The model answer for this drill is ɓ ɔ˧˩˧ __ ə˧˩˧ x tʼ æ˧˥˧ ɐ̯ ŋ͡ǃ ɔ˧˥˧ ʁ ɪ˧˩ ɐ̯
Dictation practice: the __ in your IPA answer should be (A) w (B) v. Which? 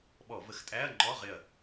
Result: B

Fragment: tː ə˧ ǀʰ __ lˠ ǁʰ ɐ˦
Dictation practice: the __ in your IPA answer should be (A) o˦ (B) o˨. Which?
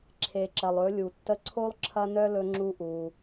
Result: A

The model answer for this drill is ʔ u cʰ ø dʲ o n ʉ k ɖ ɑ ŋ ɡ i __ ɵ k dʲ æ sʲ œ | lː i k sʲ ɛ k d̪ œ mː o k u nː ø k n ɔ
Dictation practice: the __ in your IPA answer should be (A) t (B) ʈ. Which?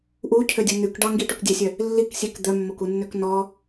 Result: B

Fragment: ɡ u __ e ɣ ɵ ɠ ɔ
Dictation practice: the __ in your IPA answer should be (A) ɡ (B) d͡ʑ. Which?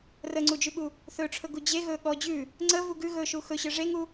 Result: B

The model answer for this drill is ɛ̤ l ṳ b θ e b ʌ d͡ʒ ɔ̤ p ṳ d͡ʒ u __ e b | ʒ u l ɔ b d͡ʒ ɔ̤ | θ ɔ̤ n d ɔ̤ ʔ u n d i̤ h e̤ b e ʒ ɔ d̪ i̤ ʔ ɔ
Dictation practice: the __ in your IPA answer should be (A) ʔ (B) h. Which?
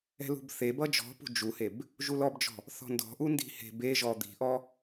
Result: B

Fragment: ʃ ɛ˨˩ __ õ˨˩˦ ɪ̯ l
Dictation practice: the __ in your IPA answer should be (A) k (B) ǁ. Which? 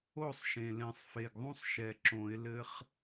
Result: B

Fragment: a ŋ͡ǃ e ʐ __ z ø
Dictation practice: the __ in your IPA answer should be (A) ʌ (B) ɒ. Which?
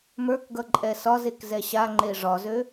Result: B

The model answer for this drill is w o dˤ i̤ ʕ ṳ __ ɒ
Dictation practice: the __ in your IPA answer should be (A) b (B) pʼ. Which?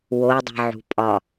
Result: B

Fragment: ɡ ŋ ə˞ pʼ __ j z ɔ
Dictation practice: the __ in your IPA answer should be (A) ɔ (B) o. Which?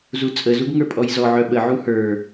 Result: A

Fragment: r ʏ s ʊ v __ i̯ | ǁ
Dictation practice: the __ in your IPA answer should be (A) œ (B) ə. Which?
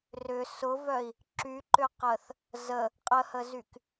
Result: A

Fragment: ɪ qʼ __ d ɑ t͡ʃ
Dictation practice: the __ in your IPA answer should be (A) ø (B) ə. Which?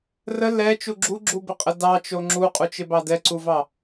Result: B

